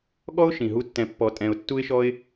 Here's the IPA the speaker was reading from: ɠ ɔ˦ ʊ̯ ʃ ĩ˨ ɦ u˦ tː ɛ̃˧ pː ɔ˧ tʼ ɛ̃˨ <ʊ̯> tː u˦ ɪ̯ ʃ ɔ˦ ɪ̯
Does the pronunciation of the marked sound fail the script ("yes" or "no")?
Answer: no